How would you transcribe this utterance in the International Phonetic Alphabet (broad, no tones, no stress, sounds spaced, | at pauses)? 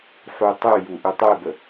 ħ u tˤ ʉ j u ʔ ʉ tˤ e b ə